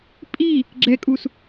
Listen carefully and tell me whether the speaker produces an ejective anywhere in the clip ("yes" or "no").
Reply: yes